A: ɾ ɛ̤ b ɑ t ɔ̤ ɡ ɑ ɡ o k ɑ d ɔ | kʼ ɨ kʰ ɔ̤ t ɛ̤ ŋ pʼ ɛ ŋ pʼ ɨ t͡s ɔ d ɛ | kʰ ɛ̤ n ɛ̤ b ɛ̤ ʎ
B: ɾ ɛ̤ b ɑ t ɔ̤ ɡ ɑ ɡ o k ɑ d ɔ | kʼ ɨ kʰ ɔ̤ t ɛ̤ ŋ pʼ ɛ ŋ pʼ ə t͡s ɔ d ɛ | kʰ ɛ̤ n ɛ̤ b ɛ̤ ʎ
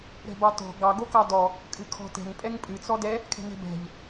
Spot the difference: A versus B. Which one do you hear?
A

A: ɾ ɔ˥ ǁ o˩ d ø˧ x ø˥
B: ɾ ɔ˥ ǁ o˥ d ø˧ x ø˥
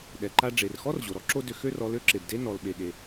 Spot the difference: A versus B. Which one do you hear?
B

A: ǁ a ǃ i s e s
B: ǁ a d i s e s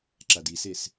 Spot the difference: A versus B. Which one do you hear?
B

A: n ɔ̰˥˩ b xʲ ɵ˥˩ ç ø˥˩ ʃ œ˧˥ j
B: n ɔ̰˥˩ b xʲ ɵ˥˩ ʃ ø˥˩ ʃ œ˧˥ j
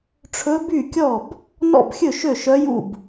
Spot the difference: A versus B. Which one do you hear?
B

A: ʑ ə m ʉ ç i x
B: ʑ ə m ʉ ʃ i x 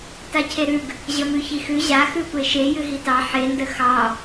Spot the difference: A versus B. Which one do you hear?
A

